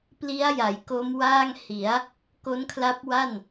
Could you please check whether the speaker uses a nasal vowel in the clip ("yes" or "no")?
no